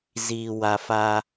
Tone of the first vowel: low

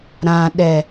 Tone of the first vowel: low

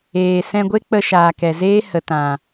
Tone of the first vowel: low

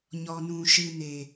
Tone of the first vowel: low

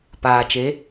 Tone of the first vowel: low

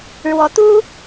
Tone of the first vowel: rising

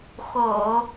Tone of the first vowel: low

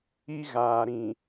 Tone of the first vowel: high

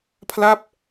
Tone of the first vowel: falling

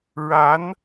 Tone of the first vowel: rising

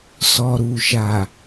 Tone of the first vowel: low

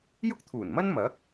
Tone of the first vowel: high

